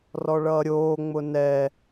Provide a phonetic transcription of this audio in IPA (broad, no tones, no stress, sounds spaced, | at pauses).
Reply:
r ɔ ɭ ʌː ɾʲ oː ŋ͡m ʊ n ɛ